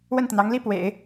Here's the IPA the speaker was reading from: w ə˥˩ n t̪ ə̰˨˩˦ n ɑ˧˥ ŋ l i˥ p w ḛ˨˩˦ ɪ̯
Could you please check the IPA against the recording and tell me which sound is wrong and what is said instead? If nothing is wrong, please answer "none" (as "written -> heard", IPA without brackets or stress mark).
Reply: ə̰˨˩˦ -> ə˩